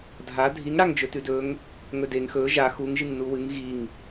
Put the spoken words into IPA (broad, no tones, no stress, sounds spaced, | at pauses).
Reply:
dʱ a dʱ i ŋ ɽ a ŋ d͡ʒ ɵ t ʉ d ɵ ŋ | ŋ ɵ d e ŋ x ɵ ʒ a x u ŋ ʒ ɨ ŋ n u w ɨ ŋ ɣ i ŋ